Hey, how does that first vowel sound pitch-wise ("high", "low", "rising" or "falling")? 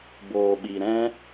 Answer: low